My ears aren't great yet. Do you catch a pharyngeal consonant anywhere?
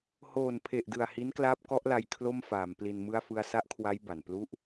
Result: no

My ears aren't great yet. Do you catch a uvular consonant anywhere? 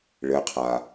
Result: yes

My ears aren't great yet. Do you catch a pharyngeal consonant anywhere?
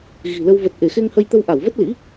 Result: no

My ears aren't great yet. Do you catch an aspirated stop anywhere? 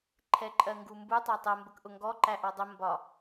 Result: yes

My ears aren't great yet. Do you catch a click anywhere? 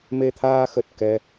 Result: no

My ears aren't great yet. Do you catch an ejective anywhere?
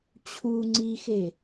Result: no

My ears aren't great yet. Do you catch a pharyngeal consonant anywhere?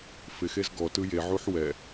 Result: yes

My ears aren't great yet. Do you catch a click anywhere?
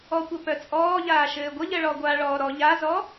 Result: no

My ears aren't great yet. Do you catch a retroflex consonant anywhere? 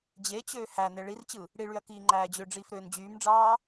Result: yes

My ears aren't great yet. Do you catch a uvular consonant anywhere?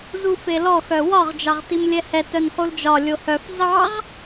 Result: yes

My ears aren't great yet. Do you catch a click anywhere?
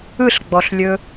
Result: no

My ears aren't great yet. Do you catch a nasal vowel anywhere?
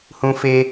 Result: yes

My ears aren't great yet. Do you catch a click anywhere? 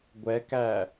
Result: no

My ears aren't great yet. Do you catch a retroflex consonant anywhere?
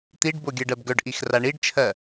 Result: yes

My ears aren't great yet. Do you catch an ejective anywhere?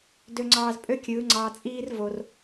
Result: yes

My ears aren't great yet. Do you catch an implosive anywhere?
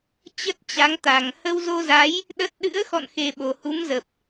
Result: yes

